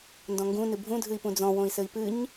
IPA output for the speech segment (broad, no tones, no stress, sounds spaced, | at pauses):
n d ɔ̃ ŋ ɡ ũ n ɨ bʱ ũ dʱ ɨ i̯ p ũ d͡z ɔ̃ w õ i̯ s ɘ i̯ p ɨ ɲ